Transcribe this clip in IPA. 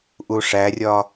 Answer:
ʔ u ʂ æ rʲ ɒ

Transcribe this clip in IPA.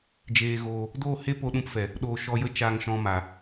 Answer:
d͡ʒ eː˧ ɣ oː˧ | d oː˦˨ h e˦ p o˧ ɗ ũ˧ p f ɛ˨ | ɗ oː˨ ʃ ɔ˧ j ə˦ t͡ʃ aː˧ ŋ ʃ ɔ̃˧ m a˨

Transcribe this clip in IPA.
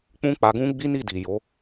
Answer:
k͡p ũ˦ k͡p a˧ ɡ ũ˦ ɡ͡b i˦ n i˦˨ d i˨ j o˨˦

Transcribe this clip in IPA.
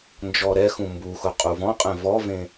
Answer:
n d͡ʒ ɔ ɾ ɛ x ũ m b u x ʊ qʼ u v ɔ̃ qʼ ɛ̃ v ɔ v ẽ

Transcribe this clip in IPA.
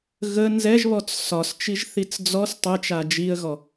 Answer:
ɣ ə n z ɛ ʒ β ɔ t͡s s ɒ s t͡ʃ i ʒ θ i t͡s d͡z ɔ s tˤ ɛ t͡ʃ a d͡ʒ i ə̯ ɣ ɔ

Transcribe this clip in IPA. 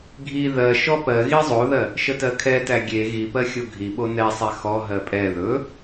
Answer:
ɡʱ i ð ɜ ʃ ɔ p ɜ ɣ i zˤ o ð ɜ | ʃ ə t ɜ kʰ ɛ t æ ɡʲ e ɣ i p ɜ xʲ o ɡʱ i ɓ o n ɛ sˤ ɛ x ɔ ɦ ɜ pʼ ɛ ð ɵ

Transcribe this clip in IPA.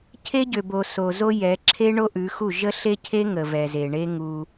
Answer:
cʰ e˦ ɟ ø˨ b o˨ s o˨ z o˦ j ɛ˨˦ ǁʰ e˦ ɳ o˦ ʔ ʉ˨˦ x u˦˨ ʒ ə˦ ɬ e˦ cʰ e˦ ŋ ə˨ v ɛ˨ z e˨ ɳ e˦ ŋ u˦

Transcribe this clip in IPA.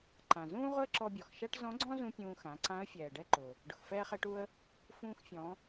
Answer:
ǃ ã˩ z ũː˥ ʁ ʊ˥ ə̯ ǁ ɔ˧ bʲ ɔ˩ x ʃ a˥ ʈ z ɔ̃˧˥ ɡ͡ǀ ɔ̃˥ z ũ˧ pʲ ũː˧ x ã˩˧ ǀ ã˧˥ ə̯ fʲ ɛː˩ ɖ ɛ˧ ǃ ʊ˩ | ɖ ʊ˩ x f ɛː˧ χ ɛ˧ ʈ u˧ ə̯ | f ũː˧ x fʲ ɔ̃˩˧

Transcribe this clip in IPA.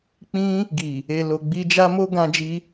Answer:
k͡p ĩ˧ | ɡ i˨ | e˨ l o˨ ɡ͡b i˧ d͡ʒ a˦ m o˦ ɡ ã˧ d͡ʒ i˧

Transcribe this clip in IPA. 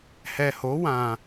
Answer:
h ɛ˨ h o˨˦ w ã˧

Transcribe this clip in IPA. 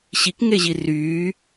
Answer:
ɕ i k ŋ e ʑ i r yː

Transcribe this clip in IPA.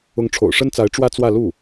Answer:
ʊ˧˥ ŋ ʈ͡ʂʰ o̰˨˩ ʊ̯ ʂ ə˥ n t͡s a˧˥ ɪ̯ ʈ͡ʂ w ä˥ t͡s w ä˥˧ l u˥˩

